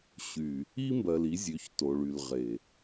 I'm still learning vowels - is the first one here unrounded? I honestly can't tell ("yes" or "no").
no